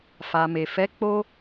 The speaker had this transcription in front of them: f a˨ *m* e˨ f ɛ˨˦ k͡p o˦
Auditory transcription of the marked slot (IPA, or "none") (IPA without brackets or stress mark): m